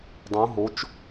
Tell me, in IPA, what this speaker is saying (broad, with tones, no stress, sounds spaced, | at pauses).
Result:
dˤ ũ˧˥ ɦ o˧˥ t͡ʃ